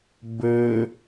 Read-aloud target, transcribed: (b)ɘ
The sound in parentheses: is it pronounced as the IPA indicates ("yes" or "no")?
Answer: yes